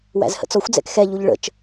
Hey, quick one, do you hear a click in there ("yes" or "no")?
no